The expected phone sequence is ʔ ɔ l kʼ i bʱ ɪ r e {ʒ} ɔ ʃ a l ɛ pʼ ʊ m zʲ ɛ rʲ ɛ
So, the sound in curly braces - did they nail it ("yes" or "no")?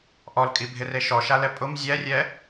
no